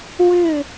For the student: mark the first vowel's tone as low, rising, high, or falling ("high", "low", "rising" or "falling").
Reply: falling